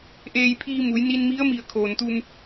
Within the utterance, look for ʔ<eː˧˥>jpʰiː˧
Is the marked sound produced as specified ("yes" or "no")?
no